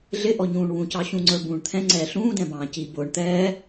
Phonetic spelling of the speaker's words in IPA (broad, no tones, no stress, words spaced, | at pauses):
ɮɪʔɔɲũːɳ wũcɑ ɕũŋ͡ǀə˞bũːɳ t̪ʰɛ̃ŋ͡ǀɛː ɬũːdɛ̃bɑ̃ː ci bʊːɳ t̪ɛː